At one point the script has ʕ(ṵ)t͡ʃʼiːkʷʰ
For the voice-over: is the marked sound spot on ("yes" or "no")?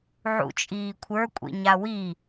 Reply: yes